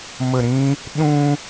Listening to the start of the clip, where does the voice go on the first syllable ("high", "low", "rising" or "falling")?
low